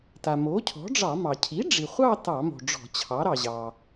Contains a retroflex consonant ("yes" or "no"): yes